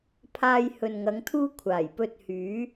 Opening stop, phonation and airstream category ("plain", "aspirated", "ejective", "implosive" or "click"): aspirated